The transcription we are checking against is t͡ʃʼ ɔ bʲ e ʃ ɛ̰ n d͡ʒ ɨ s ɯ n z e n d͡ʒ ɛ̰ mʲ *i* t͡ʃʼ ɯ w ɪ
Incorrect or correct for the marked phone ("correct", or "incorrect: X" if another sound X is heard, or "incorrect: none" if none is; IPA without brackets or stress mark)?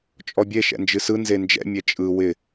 incorrect: e